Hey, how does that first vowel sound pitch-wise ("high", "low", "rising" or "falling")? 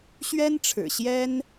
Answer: high